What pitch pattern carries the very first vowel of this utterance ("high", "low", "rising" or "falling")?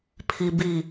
low